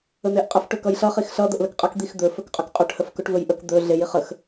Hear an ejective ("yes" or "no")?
yes